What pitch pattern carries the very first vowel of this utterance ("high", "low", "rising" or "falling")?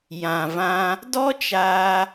low